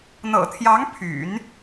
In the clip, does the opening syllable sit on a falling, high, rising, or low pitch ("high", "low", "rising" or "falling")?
low